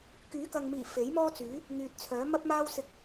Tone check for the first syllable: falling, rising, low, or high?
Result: rising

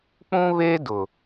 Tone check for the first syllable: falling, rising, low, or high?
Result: high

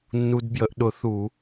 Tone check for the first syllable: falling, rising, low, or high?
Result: low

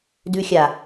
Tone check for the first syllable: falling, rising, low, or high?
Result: low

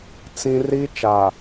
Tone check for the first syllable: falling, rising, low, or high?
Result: high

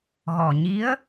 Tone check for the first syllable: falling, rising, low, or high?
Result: low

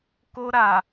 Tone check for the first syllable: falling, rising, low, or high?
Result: high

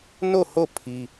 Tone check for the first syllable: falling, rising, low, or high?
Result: falling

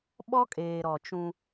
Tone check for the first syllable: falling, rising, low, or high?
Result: high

